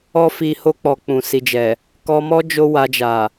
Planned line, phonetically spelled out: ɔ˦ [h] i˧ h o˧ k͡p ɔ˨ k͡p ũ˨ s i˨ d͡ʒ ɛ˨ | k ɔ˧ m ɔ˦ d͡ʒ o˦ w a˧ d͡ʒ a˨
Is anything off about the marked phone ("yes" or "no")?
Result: yes